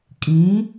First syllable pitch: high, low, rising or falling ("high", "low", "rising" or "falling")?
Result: rising